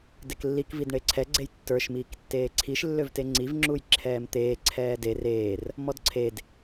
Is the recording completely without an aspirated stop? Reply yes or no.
no